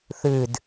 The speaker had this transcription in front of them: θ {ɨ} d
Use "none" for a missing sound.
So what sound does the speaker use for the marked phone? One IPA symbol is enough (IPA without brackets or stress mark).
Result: ɨ